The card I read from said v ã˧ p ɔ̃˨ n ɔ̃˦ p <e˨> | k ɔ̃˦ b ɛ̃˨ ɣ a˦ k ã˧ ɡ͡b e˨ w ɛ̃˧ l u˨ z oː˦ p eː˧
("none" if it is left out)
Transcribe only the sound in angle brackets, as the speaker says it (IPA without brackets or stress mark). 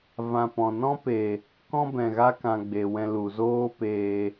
e˨